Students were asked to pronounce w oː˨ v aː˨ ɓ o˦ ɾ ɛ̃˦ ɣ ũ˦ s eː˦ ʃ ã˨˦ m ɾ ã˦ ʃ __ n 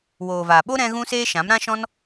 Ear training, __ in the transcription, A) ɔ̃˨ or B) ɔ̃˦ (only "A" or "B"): B